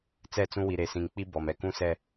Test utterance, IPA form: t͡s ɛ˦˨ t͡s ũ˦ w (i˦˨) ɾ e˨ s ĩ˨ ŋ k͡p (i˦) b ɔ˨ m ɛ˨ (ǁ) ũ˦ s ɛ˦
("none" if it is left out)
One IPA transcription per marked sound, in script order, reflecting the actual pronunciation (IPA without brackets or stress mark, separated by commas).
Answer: i˨, i˦, k